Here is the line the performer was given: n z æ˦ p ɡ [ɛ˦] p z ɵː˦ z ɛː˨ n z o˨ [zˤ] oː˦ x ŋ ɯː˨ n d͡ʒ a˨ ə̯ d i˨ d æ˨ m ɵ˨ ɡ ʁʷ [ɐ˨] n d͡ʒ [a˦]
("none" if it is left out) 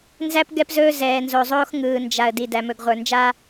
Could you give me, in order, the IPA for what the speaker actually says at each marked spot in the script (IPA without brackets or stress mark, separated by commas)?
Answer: ɛ˦, zˤ, ə˞˨, a˦